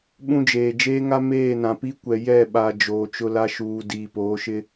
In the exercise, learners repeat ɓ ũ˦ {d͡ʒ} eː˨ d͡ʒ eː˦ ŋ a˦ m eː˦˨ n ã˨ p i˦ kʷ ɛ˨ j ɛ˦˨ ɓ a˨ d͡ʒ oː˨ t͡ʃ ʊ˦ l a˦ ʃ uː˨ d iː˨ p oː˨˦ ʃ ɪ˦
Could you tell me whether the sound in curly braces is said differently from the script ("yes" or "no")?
no